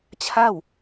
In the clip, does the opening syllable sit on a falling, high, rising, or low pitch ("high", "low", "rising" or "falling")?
falling